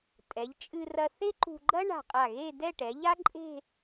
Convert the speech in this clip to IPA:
tʼɛ˩˧ʎt͡ʃʼɨ˧ rɐ˧θe˥ǃṳ˧ɡ͡ǃɐ˥ ɳa̤˧˩qʼa˧˩ɣe˥˧ dɛ˥˧ʈɛ˩˧ʎa˥ ǃʼe̤˥˧

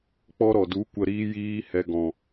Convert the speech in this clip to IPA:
k͡pɔ˧ɾɔ˨du˨˦ kʷə˧ɾiː˦jiː˦hɛ˧ ɡɔ̃˨

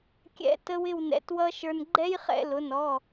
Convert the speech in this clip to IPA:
kʲɛ̰˦˥ tə˦˥wɪ˥˧w nɛ̰˧˩˧twʌ˦˥ʃə˞˧n ɡ͡ǃɛ˦˥jχɛ̰˧˩˧lʊ˩˧˩nɔ˩˧˩

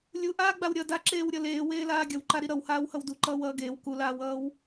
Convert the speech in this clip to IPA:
lʲuʔaːɡ͡baw ɾʲʌ daǁeːwɾʲʌ leːweːlaː ɡʲʌwǃaɾi ɾʌwhaːwhʌw duǃʌːwʌː ɡeːw kulaːwʌːw

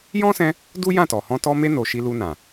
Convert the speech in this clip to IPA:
jɔ̃˦sɛ̃˧ | du˦jã˦˨tɔ˨hɔ̃˧ tɔ˧me˧no˨ ʃi˧lu˧nã˨

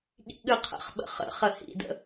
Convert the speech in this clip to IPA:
ɠḭɠɨqʰə̰χɓə̰ χə̰ χəhḭdə̰

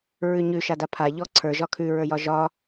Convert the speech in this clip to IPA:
ɹʉɲʉ ʃadapʰa ʎɔ ǀʰə˞ ʒɒkʰʉ ɹə˞jɒʒɒ

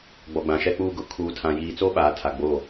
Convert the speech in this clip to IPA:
ɡ͡bɔ˨ɡ͡bã˨ʃɛ˦k͡puː˦ ɡʊ˦ kʰuː˨tʰã˨jiː˨t͡so˦ ɓaː˨˦tʰa˨ ɡ͡bo˦˨

